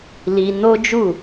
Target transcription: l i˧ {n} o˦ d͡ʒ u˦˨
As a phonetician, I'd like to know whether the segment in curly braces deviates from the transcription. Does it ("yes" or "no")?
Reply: no